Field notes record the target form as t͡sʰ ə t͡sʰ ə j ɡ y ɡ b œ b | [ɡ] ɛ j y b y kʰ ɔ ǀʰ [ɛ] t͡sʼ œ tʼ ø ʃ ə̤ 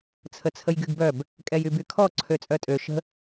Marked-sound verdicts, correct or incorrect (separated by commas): incorrect, incorrect